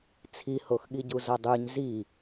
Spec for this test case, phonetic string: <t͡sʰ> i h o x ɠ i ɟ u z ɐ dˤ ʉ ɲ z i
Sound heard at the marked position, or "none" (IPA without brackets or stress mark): t͡sʰ